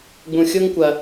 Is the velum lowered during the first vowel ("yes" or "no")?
yes